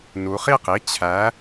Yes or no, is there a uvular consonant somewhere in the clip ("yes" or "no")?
yes